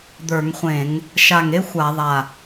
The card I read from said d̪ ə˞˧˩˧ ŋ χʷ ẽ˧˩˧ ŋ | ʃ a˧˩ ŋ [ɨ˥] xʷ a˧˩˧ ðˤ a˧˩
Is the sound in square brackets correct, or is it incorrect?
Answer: incorrect